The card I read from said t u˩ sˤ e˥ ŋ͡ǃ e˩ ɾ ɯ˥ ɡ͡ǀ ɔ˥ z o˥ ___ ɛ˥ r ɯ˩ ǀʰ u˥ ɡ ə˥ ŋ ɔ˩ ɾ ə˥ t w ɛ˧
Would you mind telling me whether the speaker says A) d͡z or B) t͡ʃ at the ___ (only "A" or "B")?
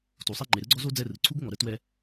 A